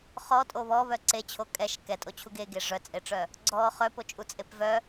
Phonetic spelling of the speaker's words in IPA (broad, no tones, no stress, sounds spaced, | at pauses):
χ ɔ tʼ o β ɔ β œ ǀ e t͡ɕʰ o kʼ ɛ ʃ k ɛ tʼ o t͡ɕʰ u ɡ e ɡ e ʐ œ t͡sʼ e ʈ͡ʂ œ | ɡ͡ǀ ɔ χ œ p o t͡ʃʼ u t͡sʼ e p v œ